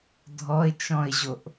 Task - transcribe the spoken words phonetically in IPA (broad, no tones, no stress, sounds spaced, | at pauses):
dʱ ɔ ɪ̯ t͡ʃ ɔ̃ ɪ̯ ʑ o ʔ